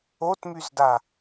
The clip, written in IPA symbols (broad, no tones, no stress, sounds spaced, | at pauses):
o t m y z d a